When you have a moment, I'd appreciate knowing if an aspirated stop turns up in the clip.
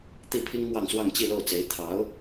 yes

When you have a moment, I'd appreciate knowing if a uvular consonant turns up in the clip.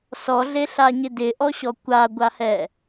no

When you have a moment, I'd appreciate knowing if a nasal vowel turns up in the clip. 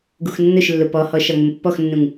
yes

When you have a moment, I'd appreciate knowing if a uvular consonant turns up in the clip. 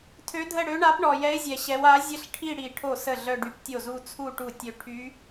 no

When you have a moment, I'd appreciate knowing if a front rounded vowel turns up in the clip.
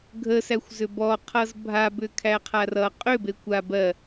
yes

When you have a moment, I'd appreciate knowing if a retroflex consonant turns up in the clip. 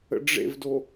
yes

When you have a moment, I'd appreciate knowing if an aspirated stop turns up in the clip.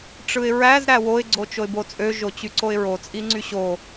no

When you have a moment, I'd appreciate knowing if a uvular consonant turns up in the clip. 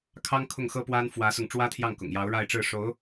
no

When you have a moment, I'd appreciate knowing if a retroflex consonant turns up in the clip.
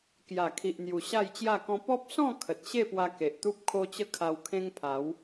no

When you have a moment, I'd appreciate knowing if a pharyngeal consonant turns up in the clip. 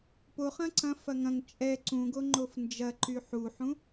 yes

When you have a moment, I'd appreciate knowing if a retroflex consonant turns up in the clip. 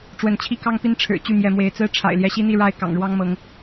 yes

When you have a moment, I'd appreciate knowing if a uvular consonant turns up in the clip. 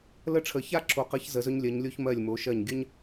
yes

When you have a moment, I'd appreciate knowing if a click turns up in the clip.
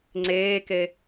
yes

